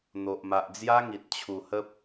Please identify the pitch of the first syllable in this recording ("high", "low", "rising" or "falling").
low